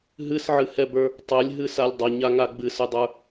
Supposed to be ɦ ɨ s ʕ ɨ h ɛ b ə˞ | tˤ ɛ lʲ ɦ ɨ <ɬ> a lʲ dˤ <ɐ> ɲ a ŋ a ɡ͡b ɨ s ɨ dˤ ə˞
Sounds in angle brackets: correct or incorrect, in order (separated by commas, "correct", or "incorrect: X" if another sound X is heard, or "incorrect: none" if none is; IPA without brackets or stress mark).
incorrect: s, correct